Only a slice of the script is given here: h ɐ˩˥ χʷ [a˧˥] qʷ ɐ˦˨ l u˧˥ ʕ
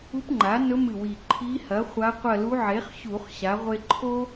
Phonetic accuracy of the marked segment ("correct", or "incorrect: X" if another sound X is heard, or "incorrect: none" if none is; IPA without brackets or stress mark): correct